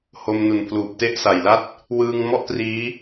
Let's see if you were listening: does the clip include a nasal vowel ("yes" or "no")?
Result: no